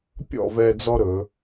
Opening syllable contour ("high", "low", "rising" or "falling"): falling